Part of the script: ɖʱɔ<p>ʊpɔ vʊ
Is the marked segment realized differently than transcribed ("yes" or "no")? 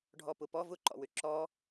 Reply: no